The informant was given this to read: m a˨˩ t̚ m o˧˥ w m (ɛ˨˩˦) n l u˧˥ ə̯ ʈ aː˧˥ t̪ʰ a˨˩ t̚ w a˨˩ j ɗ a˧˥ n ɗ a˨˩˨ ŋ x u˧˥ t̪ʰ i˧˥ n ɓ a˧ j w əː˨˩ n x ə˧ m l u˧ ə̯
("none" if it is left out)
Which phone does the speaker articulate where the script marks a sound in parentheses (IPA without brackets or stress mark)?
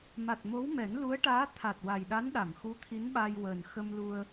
ɛ˨˩˦